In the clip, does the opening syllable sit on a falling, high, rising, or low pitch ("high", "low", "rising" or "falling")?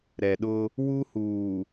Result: low